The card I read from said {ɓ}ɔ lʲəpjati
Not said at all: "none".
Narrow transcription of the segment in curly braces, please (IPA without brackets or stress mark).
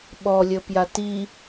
ɓ